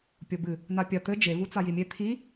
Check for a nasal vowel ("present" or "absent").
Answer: absent